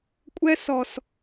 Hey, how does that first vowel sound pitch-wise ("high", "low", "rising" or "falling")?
high